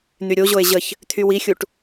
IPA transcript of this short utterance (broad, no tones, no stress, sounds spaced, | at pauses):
n̪ y ɾʲ o ʑ o e̯ ʑ ə ç | t̪ʰ y w i xʲ u ʈ